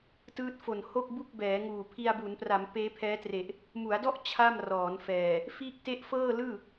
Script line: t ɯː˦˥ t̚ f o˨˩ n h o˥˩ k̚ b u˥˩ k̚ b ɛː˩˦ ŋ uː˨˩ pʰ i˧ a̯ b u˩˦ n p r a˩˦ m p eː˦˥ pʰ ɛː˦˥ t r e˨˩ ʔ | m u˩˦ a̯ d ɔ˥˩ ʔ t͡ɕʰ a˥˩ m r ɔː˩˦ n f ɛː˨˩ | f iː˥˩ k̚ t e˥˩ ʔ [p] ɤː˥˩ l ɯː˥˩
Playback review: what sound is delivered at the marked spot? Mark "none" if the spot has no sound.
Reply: f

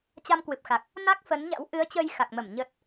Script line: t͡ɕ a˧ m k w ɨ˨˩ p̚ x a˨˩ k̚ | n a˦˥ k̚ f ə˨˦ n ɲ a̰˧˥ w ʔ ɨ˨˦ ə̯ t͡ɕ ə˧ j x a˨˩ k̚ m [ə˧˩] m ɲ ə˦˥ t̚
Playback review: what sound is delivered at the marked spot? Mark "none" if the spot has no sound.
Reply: ə˧˩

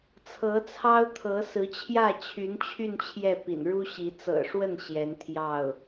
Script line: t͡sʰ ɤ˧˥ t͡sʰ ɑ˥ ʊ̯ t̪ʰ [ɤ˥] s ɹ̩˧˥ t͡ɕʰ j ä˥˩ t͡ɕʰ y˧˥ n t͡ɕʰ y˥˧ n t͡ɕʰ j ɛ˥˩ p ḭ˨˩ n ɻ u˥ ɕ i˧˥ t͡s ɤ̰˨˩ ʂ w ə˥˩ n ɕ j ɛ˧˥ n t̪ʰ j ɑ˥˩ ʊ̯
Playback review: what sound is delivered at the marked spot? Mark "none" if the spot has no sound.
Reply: ɤ˧˥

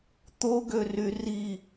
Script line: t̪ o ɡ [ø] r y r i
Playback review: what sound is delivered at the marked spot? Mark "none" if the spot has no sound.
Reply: ø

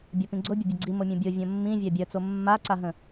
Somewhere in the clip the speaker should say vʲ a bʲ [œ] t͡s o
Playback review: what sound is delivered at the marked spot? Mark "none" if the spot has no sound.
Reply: œ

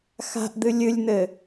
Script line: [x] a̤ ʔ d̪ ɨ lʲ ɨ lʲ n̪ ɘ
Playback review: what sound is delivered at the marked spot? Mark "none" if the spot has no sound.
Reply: x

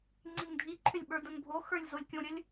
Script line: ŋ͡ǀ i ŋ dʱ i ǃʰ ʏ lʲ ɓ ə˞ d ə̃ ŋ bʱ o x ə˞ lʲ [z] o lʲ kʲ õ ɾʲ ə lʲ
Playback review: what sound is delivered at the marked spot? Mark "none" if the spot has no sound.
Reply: z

